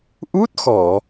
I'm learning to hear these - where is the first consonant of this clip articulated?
throat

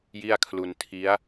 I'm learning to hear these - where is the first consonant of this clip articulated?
palate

